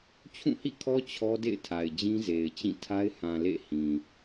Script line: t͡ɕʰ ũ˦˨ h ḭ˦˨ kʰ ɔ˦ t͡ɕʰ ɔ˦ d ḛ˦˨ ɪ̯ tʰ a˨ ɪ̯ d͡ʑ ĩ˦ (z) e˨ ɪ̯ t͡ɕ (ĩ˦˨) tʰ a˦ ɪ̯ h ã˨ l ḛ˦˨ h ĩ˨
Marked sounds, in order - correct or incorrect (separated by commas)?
correct, correct